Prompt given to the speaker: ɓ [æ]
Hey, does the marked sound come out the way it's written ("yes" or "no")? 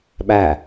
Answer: yes